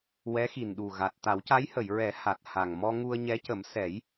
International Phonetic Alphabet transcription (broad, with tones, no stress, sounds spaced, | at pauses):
w ɛ˧˥ x i˨˩ n ɗ u˨˩ ɣ a˨˩ t̚ t̪ a˨˩˦ w c a˧˥ j h ə˨˩˨ j ɹ ɛ˨˩˦ h a˨˩ t̚ h a˨˩ ŋ m ɔ˧ ŋ u˧ ə̯ ɲ ɛ˧˥ c ə˨˩˦ m s ɛ˨˩˦ j